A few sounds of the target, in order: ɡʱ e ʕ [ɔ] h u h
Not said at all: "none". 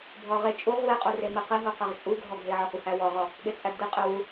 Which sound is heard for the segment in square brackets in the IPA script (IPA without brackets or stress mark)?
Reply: ɔ